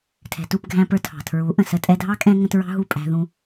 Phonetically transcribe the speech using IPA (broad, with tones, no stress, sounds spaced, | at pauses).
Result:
tʰ ɛ̤˨ t u˦˨ p ɡʱ æ̃˧ p ə˞˧ tʰ ɑ̤˨ tʰ ɹ u˨˦ ʔ ə̃˨ s ə˧ tʼ ɛ˧ dʱ ɑ˦ kʼ ɛ̃˦ ŋ ə̃˧ t ɹ ɑ̤˦ ɦ u˦˨ pʼ æ̤˧ ð ũ˧